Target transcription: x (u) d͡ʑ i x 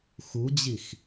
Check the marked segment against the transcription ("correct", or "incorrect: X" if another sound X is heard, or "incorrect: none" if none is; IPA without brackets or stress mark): correct